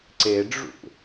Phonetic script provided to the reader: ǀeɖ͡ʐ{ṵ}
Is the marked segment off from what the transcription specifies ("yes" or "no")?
no